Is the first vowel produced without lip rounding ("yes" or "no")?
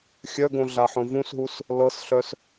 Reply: no